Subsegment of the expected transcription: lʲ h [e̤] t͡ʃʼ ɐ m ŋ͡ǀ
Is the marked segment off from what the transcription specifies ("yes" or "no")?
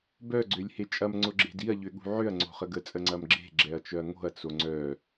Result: yes